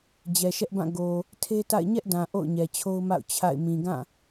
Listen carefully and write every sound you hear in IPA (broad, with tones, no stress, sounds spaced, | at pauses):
d͡ʑ ɛ˨ ʃ ɛ˦ ʔ b ã˦˨ ɡ o˨ | tʰ e˦ t a̰˦˨ ɪ̯ ɲ ɛ˦ ʔ d ã˨ ʔ o̰˦˨ ʊ̯ ɲ ɛ˨ t͡ɕʰ o˦ ʊ̯ m a̰˦˨ ʊ̯ t͡ɕʰ a̰˦˨ ɪ̯ m ĩ˨ ɡ ã˦˨